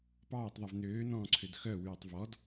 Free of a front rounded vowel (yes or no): no